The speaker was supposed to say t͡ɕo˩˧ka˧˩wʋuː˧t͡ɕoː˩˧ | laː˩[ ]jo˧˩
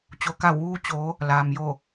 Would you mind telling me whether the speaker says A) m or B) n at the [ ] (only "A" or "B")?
A